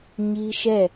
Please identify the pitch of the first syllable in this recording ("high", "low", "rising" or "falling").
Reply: high